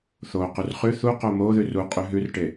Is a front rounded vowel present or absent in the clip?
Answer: absent